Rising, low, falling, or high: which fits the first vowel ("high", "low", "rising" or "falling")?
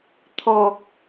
low